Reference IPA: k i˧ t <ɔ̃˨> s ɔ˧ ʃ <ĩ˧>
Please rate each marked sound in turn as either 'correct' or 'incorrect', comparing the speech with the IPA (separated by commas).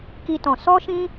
correct, correct